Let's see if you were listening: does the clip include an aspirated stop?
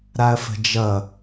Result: no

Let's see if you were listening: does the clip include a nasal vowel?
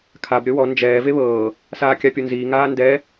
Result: no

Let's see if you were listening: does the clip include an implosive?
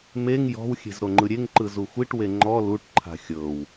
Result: no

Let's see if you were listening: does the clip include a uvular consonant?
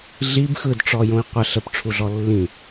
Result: yes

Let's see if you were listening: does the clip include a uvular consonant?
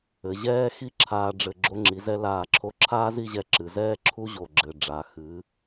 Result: no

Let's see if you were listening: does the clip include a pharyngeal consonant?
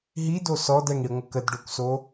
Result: no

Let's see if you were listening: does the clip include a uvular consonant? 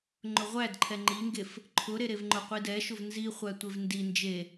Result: yes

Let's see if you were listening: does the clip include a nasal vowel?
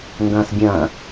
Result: yes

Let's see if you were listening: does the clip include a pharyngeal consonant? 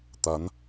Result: no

